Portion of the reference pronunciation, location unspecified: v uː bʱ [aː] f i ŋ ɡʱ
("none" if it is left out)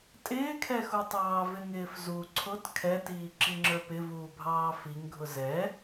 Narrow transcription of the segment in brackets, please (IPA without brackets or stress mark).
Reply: ɑː